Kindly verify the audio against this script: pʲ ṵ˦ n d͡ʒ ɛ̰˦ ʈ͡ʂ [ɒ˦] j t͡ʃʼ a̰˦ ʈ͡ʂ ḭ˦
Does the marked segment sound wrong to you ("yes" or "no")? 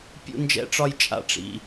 no